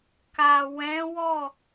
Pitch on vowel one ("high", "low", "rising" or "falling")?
low